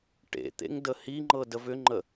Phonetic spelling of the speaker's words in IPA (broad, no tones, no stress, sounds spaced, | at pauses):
ʈ ḛ t̪ ḛ ŋ d ə h i ŋ͡ǃ ɤ d ə v ʏ ŋ͡ǃ ə